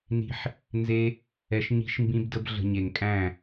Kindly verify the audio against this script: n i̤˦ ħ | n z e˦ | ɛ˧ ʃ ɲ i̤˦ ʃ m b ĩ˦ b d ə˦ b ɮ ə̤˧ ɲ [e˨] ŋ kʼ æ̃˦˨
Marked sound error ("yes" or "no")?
no